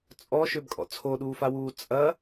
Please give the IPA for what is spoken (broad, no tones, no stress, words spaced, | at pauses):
t͡sʼɔʃøbkʼɔ̰ t͡sʰoɗuːfawuː t͡sʼɐ